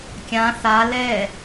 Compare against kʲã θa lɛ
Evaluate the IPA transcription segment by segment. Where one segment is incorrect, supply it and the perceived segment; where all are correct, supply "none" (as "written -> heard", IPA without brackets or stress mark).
none